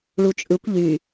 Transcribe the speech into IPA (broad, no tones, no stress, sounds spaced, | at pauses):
ɭ u t͡ʃʼ ɯ kʷ ʎ y